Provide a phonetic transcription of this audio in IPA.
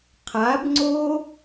qʰ a b ŋ͡ǀ o

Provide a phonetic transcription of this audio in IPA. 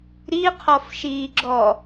ɾ i qʰ ɔ f ʃ iː ɡ͡ǁ ɔ

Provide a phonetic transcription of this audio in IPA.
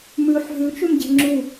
m ʉ ħ ɦ ʉ t͡ʃ ʉ m ɟ e̤ ŋ͡ǁ u

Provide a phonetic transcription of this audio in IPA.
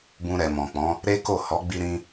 b ũ˧ ɾ ɛ˨ m ɔ̃˨ k͡p ɔ̃˨˦ | ɾ e˦ k o˦˨ h ɔ˨˦ ɡ͡b i˧ ɾ ĩ˧

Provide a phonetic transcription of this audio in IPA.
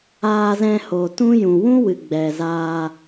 aː˧ z ɛ̃˧ h o˨ t ũ˦ j ũ˨ w ũ˦ w ɨ˨ ɡ͡b ɛ˨ z aː˧

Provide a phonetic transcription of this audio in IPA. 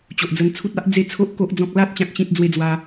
t͡ɕ o˨ ʔ d͡z ə˧ n t͡sʰ u˦ t̚ a˦ ʔ d͡z e˦ t͡sʰ o˦ ʔ k o˦ ʔ d͡z ɔ̃˦ k̚ l a˦ t̚ t͡ɕ ã˦ k̚ ɕ ĩ˦ t̚ d͡z w e˦ d͡z w a˧

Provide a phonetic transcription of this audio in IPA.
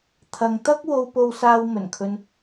t̪ʰ ɐ˨ ŋ t̪ ɐ˥ k̚ w o˧ w p o˧ w s aː˧ w m ɵ˨˩ n kʰ ɵ˧ n

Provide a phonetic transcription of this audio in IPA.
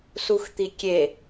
s u x t̪ i kʲ e

